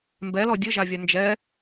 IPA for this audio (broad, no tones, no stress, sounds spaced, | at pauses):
m b ɛ l ɔ dʲ ə ʒ a vʲ a n d͡ʒ ɛ